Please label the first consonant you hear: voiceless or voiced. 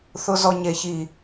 voiceless